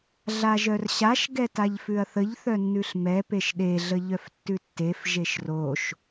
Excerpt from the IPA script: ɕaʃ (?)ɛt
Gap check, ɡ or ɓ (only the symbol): ɡ